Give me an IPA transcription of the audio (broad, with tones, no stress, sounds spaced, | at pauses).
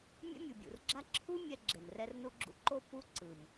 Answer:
mʲ ɛ̰˦ mʲ u˨ bʲ ṵ˨ r ɡ͡ǁ a˦ ǁʰ u˦ mʲ ɛ˧ ɡ͡ǁ e˨ m r ɛ˦ r n u˦ ɡ͡ǁ ṵ˦ ǃ o˦ p u˦ ǀ ɯ˨ m